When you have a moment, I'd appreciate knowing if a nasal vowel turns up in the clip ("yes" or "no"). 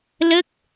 no